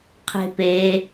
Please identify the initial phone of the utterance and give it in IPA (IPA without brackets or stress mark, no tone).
qʰ